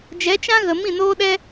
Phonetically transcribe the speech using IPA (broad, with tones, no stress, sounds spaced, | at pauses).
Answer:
d͡ʒ ɛ˨˦ t͡ʃ ã˦ ɣ ə˨ m ĩ˦˨ n oː˦ ɗ ɛ˦